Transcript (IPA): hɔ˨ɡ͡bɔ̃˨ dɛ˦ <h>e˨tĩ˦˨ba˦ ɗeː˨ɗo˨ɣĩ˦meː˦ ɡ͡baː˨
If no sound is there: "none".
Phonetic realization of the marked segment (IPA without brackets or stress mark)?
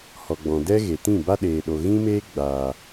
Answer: ɣ